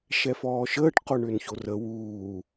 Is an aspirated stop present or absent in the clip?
absent